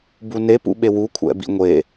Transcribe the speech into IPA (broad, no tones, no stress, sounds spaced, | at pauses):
b u n e p ṵ ɓ e w u kʷʰ ɛ̰ b ḭ ŋʷ e